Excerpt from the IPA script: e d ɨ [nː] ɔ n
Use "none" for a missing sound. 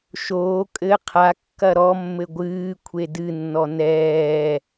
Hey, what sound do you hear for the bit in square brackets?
nː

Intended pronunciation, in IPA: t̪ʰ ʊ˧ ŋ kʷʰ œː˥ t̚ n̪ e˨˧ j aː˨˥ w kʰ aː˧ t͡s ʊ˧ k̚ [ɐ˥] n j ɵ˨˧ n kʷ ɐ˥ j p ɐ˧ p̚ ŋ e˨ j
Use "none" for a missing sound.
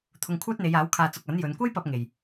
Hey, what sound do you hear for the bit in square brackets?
ɐ˨˥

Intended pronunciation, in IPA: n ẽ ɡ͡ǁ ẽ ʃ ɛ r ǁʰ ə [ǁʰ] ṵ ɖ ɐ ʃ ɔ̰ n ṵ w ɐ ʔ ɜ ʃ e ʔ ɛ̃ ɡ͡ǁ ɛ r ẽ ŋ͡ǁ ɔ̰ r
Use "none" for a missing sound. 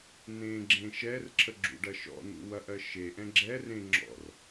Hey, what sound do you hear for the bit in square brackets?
ɡ͡ǁ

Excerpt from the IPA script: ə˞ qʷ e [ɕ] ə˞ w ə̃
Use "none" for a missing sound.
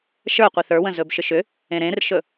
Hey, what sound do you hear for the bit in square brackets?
θ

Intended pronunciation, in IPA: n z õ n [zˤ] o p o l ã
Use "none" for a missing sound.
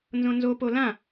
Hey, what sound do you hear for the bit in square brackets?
z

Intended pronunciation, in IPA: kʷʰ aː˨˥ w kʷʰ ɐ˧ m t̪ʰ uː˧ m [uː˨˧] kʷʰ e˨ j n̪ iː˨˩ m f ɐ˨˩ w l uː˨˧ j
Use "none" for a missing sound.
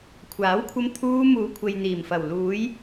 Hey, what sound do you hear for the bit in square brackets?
uː˨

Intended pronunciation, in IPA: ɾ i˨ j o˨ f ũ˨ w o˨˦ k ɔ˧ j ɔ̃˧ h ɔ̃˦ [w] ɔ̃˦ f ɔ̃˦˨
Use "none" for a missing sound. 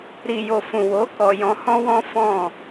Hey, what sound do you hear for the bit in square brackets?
w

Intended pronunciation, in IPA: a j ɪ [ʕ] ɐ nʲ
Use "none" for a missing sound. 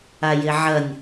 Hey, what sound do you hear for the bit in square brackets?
ʕ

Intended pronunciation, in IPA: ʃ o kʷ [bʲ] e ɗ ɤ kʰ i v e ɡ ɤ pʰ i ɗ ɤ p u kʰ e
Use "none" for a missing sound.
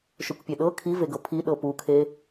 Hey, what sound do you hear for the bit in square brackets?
pʲ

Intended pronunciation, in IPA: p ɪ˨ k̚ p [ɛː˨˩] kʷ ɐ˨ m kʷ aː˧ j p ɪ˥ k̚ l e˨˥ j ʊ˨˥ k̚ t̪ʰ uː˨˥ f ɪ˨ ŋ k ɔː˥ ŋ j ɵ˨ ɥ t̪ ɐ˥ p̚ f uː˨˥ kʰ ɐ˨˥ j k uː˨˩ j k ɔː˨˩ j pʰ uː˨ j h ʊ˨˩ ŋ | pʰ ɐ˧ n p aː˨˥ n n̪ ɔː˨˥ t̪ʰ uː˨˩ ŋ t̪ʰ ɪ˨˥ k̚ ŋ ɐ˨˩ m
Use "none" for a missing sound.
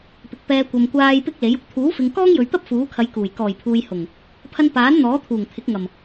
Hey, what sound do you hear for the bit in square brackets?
ɛː˧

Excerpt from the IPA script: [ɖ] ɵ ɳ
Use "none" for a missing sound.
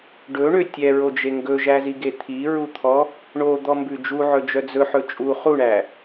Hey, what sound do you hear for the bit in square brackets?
ɖ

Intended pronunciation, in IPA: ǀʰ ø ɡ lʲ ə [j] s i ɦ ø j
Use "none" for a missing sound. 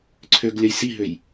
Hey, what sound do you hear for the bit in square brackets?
j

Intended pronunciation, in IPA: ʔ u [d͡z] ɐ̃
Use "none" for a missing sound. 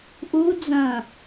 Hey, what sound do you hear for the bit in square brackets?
d͡z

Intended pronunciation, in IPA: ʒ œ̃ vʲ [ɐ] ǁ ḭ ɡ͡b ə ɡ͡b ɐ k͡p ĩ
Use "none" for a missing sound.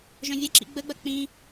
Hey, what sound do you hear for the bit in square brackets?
ɐ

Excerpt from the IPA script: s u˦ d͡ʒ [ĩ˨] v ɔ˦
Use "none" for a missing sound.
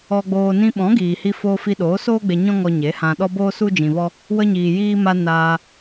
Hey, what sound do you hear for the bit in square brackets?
ĩ˧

